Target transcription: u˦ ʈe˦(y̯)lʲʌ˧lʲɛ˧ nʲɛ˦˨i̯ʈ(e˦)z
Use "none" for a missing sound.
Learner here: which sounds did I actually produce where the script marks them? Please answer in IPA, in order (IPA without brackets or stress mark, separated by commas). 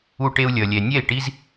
u̯, i˦